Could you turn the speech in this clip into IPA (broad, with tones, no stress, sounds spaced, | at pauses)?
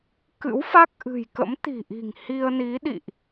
k ɨ̰˧˥ w f a˦˥ k̚ ʔ ɨ̤˨˩ j k ə̰˧˥ m t̪ i̤˨˩ ʔ i̤˨˩ ŋ h i˧ ə̯ n i˨˦ ɗ ḭ˧˨ ʔ